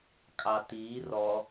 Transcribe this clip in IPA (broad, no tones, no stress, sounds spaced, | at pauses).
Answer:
kʼ ɑ t iː r ɔ